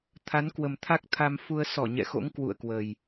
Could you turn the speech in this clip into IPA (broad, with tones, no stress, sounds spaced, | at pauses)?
t̪ʰ a˨˦ n k w ə˨˩ m t̪ʰ a˦˥ k̚ t̪ʰ a˧ m f u˧ ə̯ s ɔ˧˩ ɲ ɛ̰˧˨ x o̰˧˥ ŋ k w ṵ˧˨ ə̯ k w ə˨˩ j